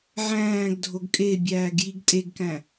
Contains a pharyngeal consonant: yes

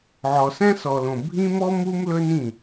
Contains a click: no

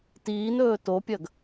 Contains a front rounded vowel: no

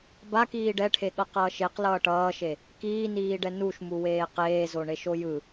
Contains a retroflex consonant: yes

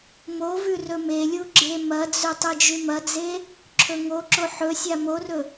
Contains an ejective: no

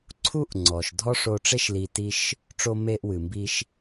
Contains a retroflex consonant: yes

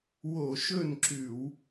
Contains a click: yes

